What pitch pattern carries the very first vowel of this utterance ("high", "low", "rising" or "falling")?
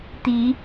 rising